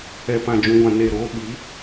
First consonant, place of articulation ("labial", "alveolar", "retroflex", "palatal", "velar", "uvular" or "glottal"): labial